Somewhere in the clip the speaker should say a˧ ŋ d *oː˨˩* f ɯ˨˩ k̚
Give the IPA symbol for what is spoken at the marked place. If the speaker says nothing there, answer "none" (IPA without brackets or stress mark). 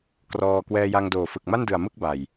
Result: oː˨˩